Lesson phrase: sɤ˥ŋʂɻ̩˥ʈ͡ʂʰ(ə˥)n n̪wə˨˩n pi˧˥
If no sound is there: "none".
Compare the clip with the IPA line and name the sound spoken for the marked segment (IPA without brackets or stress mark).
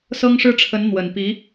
ə˧˥